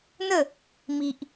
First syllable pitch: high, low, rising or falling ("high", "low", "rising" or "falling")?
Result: falling